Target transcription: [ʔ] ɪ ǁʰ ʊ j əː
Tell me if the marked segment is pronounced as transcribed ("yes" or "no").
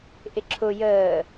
yes